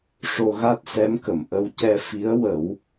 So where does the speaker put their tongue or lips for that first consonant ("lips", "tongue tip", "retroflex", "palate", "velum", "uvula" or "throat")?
retroflex